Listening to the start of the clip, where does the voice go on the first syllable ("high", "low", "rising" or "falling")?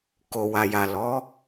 low